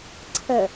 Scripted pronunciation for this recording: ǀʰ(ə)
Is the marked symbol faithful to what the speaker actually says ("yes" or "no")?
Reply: yes